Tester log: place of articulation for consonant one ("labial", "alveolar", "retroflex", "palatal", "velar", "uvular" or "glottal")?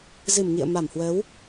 alveolar